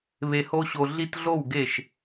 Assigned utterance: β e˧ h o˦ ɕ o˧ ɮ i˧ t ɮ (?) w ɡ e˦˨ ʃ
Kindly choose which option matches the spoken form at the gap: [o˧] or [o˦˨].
o˦˨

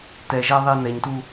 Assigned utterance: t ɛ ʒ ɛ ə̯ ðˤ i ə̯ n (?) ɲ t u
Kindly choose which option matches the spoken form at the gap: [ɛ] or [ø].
ɛ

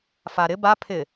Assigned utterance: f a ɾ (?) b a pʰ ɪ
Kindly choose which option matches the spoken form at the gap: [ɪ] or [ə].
ɪ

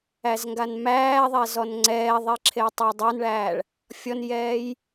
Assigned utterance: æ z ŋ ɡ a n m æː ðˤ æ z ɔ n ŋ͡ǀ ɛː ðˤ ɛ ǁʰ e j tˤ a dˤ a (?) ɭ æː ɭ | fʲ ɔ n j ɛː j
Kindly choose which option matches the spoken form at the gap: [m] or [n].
n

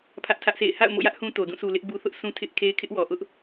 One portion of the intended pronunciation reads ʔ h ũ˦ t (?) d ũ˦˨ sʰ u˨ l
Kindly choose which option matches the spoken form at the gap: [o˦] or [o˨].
o˨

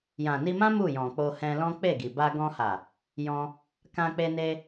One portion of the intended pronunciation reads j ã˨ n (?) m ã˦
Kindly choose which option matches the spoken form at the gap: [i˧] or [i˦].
i˧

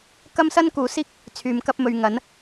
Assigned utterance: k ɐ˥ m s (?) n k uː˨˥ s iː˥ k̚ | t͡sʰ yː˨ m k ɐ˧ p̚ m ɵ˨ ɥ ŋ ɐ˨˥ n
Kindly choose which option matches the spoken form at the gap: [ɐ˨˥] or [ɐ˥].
ɐ˥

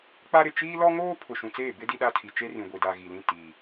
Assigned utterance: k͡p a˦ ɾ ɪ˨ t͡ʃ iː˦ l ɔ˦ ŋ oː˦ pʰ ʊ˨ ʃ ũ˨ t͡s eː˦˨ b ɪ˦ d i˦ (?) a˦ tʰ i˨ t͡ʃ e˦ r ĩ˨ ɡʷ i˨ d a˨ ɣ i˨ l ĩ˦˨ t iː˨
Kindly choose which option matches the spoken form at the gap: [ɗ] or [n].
ɗ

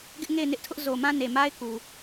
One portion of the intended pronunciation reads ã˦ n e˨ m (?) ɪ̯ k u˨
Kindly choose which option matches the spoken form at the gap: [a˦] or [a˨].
a˦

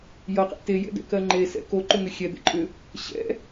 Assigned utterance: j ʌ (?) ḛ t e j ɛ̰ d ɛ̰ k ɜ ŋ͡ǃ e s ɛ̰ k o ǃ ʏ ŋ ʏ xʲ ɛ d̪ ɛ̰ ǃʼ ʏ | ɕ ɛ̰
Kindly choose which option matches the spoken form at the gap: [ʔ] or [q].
q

